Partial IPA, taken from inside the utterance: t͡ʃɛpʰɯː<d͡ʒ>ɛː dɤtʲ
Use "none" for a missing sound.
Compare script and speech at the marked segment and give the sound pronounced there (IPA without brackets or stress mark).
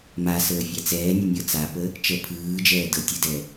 d͡ʒ